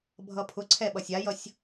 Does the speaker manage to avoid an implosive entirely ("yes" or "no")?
no